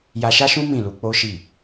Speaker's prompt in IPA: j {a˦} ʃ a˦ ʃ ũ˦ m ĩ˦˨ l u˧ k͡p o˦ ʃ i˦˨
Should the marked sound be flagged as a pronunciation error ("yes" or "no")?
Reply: yes